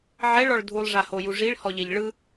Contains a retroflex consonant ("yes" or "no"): yes